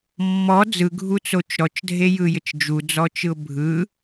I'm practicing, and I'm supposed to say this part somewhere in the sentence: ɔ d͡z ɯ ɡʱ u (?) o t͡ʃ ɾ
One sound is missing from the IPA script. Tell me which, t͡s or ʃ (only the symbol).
t͡s